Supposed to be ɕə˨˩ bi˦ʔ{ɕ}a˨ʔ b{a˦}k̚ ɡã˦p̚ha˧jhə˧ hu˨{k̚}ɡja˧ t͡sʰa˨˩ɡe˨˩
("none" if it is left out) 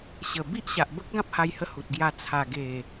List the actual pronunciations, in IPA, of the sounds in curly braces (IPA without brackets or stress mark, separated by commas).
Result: ɕ, ə˦, t̚